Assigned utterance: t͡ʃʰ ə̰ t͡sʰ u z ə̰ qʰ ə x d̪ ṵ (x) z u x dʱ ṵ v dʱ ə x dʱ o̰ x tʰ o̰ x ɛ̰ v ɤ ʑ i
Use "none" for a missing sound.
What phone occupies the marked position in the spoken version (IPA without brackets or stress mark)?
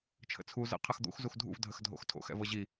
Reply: x